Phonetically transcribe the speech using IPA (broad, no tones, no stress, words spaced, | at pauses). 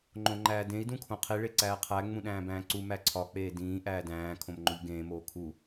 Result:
ŋ͡ǃõŋ͡ǃæːdẽi̯ dũkʰõqʰi ɭeǀæːqʰæ ŋ͡mũɗæ̃ːbæ̃ːǀu mæǀʰɒ k͡peːdĩː ʔæːdæ̃ː kʰõmŋ͡ǃoʎɡẽː moːkʰu